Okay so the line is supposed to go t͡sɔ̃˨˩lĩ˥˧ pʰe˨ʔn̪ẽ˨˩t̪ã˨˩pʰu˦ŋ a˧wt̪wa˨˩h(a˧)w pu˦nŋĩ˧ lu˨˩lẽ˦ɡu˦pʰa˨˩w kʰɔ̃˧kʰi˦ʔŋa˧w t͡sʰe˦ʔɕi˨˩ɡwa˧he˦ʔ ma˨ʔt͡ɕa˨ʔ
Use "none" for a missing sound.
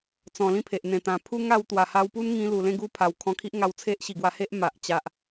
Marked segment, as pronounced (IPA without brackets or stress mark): a˧